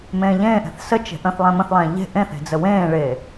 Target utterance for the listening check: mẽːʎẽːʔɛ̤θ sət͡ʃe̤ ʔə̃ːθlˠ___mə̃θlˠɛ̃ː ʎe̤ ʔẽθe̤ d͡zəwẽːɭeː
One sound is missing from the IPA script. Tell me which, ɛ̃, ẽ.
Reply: ɛ̃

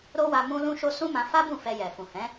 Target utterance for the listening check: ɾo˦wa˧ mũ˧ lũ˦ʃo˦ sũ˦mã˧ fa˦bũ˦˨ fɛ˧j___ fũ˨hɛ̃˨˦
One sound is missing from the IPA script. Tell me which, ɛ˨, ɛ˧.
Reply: ɛ˨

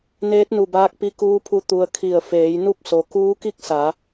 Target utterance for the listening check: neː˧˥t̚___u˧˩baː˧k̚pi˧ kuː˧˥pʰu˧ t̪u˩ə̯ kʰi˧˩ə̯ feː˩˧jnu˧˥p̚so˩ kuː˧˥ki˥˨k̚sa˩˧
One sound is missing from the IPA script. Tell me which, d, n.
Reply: n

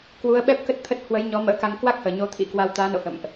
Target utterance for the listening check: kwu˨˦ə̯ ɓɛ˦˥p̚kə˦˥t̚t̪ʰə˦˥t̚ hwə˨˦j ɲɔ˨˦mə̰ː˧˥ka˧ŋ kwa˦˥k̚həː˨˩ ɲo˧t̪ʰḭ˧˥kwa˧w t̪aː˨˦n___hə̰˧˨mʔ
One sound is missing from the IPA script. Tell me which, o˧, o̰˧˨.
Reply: o̰˧˨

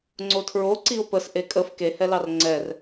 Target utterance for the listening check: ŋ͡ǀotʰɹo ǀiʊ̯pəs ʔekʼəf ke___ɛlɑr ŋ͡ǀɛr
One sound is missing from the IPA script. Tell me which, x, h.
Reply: h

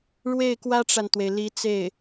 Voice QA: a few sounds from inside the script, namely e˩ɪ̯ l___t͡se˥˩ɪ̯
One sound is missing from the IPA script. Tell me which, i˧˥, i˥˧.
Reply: i˧˥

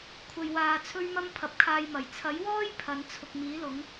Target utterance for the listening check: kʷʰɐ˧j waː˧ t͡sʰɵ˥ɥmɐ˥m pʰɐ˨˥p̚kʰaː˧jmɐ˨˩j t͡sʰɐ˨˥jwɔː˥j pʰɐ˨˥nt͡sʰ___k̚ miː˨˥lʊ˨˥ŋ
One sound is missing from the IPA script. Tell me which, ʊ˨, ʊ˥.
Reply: ʊ˨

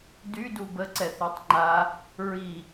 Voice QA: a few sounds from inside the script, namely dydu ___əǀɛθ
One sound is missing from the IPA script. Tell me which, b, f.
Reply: b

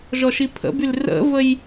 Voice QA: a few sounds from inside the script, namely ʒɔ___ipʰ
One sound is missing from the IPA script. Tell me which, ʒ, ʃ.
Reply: ʃ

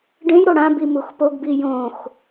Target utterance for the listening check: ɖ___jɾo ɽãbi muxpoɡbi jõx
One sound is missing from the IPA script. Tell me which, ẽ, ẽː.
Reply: ẽ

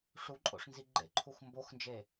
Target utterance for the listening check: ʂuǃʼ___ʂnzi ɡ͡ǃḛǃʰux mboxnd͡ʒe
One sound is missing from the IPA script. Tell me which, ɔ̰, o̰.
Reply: o̰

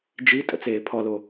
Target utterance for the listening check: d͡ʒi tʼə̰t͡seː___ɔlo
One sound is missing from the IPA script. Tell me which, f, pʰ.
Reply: pʰ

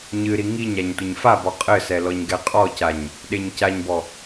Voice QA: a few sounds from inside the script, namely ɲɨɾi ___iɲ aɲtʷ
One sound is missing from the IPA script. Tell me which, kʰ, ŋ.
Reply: ŋ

